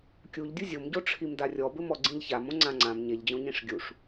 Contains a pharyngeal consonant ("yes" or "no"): no